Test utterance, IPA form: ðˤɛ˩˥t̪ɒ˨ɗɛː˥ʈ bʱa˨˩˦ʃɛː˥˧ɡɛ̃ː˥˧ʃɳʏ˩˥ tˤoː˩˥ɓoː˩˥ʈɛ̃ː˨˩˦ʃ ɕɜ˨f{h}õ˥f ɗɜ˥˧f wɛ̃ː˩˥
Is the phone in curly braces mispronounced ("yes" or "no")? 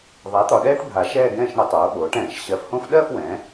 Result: no